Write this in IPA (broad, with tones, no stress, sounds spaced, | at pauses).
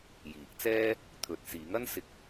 j iː˨˥ k̚ t͡s ɛː˥ | t̪ʰ ɵ˧ t̚ s iː˨˥ ŋ ɐ˥ n s ɪ˧ k̚